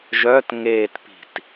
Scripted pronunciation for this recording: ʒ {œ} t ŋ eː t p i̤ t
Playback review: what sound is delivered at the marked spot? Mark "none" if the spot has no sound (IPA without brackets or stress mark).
œ